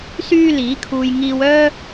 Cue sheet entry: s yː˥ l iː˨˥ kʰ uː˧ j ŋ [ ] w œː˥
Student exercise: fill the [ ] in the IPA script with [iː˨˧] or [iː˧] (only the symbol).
iː˧